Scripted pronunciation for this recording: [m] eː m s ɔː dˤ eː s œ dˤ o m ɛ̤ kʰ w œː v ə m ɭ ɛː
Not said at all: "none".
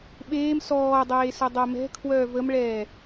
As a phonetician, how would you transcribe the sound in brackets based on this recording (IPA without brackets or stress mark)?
ɓ